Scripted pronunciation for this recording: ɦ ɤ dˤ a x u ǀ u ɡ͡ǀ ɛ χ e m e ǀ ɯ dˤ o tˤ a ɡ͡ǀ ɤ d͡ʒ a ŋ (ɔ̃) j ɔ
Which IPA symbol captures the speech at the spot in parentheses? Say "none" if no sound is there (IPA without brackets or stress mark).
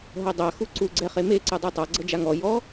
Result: ɔ